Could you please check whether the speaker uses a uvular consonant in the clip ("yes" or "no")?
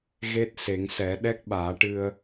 no